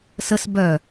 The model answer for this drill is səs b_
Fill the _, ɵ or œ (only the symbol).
œ